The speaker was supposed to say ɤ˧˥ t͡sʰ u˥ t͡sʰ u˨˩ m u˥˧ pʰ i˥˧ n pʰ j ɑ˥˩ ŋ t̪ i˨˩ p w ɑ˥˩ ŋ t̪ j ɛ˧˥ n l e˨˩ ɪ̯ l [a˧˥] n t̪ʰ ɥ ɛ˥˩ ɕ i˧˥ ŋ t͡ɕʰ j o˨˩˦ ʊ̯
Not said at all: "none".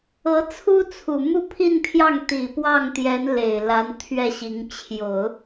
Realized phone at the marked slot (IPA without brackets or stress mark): a˧˥